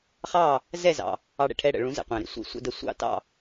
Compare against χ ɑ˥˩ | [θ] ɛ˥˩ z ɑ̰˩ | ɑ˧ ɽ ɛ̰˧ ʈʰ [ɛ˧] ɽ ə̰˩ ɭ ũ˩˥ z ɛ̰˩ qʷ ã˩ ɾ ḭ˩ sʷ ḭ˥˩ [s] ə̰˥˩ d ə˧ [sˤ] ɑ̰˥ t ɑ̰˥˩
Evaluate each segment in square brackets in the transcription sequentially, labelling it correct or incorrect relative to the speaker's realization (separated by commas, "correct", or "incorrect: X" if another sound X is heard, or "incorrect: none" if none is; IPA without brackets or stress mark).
incorrect: z, correct, incorrect: sʷ, incorrect: sʷ